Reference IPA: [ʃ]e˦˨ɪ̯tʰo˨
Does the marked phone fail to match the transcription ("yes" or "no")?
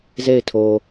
yes